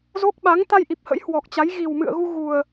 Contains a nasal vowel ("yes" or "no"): no